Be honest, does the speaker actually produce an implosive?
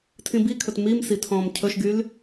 no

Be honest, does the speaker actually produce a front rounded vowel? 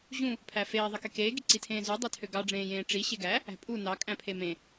yes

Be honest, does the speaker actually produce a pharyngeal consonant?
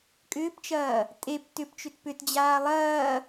no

